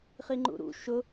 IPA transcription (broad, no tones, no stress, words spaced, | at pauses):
χiŋ͡ǃṵɾṵ ʃʊ